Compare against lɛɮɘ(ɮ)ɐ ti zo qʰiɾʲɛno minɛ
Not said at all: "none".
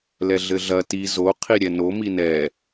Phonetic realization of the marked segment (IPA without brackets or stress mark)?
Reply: ɮ